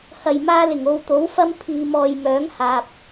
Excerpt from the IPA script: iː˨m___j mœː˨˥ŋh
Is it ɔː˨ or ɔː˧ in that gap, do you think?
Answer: ɔː˨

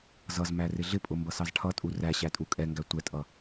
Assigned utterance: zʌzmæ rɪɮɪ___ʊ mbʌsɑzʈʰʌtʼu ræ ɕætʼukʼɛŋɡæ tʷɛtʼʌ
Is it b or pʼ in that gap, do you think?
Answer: pʼ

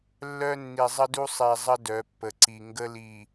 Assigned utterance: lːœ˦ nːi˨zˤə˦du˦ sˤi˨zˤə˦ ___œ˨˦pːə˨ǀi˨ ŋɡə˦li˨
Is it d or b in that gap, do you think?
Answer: d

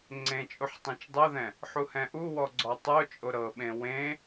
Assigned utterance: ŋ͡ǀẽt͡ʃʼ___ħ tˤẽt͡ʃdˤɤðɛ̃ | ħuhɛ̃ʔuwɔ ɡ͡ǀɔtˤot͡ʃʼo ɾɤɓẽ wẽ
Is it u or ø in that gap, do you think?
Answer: u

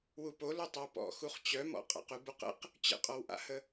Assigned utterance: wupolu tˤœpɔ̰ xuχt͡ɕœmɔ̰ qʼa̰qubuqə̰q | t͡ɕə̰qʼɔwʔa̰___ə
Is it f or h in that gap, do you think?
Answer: h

